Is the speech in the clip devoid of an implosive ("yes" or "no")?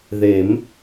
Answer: yes